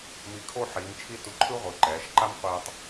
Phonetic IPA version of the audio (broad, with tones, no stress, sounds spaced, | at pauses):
m i˧˩ kʰ o˥˧ ħ iː˩˧ m t͡ʃʰ i˥ t u˧˩ ǃʰ ɯ˥ ʁʷ ɯ˩˧ ǃ ɛː˩˧ ʃ ǃ a˥ m qʷ e˧ tˤ